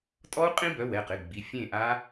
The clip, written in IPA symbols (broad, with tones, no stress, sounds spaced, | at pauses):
tʼ ɔ˦˥ u̯ qʼ ĩ˦˥ b œ˩˧˩ w ɛ˩˧˩ q ɪ˩˧˩ ɡ͡b i˩˧˩ fʲ ẽ˥˨ ʔ a˦˥